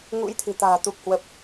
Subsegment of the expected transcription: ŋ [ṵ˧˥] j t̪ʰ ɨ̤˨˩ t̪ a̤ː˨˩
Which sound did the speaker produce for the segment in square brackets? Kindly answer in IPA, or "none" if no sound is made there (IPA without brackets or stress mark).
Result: ṵ˧˥